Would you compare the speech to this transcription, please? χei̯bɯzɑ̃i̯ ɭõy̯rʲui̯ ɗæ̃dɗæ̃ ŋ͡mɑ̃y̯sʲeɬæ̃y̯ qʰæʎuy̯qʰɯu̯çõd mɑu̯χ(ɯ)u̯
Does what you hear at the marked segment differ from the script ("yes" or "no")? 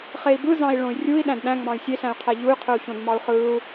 no